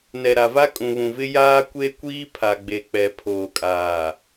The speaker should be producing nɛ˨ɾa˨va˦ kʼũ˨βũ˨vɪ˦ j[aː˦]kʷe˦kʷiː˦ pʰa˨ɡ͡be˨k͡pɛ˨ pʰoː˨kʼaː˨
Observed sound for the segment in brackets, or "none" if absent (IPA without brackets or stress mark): aː˦